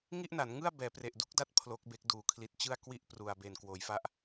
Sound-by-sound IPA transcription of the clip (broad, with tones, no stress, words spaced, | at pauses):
ŋi˥˩ʔna˩˦nŋɯ˥˩a̯ bɛː˩˦pre˨˩ʔdu˦˥k̚da˦˥t̚ pʰlo˦˥k̚be˦˥k̚duː˨˩ kʰli˨˩t̚t͡ɕɯ˥˩a̯ kwi˥˩ʔpru˨˩a̯ be˨˩nkwoː˩˦jfa˥˩ʔ